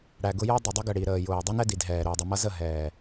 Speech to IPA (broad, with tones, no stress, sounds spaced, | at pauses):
ɽ æ˨ ɡ ʊ˦ j ʌ˦ dˤ ʌ˨ dˤ ʌ˦ ɡ ə˨ ɽ i˨ ɾ əː˨ j ʊː˨ dˤ i˦ n ɛ˦ d i˨ d ɦ ɛː˨ ɾ ʊː˨ dˤ ə˨ m ʌ˦ z ə˦˨ ɦ ɛː˨